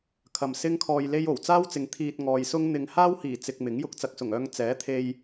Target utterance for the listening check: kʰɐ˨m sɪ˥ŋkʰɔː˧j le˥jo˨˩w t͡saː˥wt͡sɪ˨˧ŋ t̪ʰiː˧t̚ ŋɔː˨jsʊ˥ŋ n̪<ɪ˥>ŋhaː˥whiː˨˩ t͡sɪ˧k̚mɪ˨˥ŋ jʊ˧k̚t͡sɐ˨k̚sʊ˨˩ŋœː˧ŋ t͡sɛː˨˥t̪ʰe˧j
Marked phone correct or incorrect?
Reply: incorrect: ɪ˨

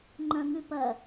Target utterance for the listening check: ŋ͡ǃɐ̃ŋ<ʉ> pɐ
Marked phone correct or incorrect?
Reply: correct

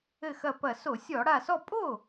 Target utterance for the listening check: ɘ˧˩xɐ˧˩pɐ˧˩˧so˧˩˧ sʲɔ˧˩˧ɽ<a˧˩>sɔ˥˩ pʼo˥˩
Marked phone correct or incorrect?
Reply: correct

